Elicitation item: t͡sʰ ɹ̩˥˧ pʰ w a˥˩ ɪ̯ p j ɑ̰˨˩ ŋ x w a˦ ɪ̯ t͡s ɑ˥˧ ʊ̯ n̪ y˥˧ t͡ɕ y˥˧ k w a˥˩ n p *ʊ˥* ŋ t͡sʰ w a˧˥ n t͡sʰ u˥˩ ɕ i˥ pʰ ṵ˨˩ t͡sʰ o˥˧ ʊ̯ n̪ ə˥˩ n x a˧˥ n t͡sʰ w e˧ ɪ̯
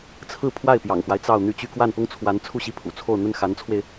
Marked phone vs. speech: correct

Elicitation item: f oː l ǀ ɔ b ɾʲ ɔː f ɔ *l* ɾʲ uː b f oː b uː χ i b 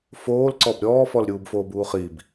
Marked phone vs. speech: correct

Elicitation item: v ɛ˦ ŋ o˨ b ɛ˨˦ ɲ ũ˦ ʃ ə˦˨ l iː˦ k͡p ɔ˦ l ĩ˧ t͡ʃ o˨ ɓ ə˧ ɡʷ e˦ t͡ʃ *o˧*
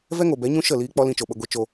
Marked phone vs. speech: correct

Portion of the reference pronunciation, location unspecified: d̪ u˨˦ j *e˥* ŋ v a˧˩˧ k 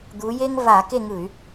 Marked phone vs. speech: correct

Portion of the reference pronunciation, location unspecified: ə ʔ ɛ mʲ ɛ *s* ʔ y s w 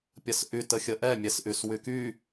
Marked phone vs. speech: correct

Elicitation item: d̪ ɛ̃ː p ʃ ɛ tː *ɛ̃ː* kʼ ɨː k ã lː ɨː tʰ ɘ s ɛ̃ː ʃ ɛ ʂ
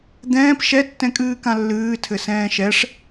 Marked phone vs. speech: incorrect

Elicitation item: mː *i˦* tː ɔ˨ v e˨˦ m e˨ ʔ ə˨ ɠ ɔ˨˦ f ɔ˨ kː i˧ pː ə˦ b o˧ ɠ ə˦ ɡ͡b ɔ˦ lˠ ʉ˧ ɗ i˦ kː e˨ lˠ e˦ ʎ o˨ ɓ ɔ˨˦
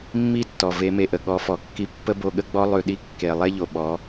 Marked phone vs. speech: correct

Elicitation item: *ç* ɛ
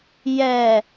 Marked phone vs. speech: incorrect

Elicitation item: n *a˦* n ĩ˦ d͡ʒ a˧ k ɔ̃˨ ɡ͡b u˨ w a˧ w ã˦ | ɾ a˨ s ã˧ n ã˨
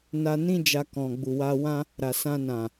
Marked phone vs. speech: incorrect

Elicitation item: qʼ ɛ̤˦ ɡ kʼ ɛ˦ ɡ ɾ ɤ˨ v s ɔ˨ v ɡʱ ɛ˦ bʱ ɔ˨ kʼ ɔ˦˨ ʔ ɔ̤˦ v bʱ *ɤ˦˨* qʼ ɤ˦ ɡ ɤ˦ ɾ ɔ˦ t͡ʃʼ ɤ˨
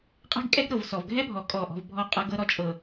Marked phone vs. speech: incorrect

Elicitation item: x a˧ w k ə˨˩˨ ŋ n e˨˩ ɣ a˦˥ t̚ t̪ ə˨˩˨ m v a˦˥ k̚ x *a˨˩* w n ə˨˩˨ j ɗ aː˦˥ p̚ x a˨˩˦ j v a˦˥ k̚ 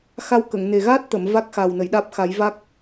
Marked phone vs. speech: correct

